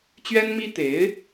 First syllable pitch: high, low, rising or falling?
high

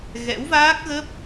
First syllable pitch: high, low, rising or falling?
rising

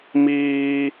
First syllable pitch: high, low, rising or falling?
high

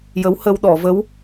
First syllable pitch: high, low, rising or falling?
rising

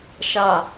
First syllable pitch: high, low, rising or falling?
falling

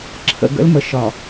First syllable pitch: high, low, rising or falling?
low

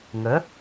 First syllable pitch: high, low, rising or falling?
rising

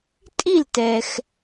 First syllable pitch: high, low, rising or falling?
falling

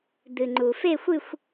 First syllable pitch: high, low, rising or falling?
low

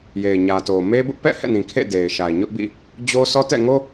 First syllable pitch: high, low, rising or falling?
low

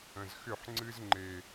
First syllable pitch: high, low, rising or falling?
low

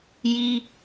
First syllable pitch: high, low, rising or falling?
high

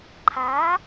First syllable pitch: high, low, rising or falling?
rising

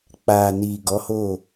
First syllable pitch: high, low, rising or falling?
low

